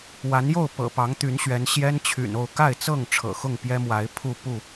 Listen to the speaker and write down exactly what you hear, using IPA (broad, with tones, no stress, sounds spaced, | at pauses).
w a˨˦ n j o˥˨ ʊ̯ p ɤ̰˨˩ p ɑ˨˦ ŋ t̪ y˨˦ n ɕ ɥ ɛ˨˦ n ɕ j ɛ˦ n t͡ɕʰ y̰˨˩ n o˥˨ ʊ̯ k a˥˨ ɪ̯ t͡s ɤ˥˨ ŋ ʈ͡ʂʰ ɤ̰˨˩ x ʊ˥˨ ŋ p j ɛ˦ m w a˨˦ ɪ̯ pʰ u˥˨ p u˥˨